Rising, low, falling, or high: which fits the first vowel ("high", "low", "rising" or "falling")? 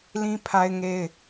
high